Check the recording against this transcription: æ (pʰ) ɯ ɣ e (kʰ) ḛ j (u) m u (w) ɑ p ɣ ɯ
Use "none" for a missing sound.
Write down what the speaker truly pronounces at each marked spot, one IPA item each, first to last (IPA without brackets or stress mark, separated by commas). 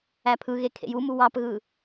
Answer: pʰ, kʰ, u, w